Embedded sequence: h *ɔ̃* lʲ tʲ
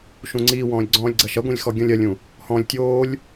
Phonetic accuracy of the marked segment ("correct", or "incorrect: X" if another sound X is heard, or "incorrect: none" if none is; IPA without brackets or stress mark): correct